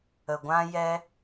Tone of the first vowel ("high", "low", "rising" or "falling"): low